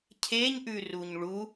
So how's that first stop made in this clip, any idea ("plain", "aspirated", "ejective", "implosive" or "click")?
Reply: aspirated